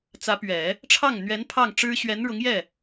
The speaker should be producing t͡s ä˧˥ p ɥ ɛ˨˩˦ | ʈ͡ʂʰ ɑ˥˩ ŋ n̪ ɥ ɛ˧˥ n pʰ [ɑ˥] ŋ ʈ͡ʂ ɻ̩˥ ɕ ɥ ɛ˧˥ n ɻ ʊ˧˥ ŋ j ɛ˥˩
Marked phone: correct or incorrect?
incorrect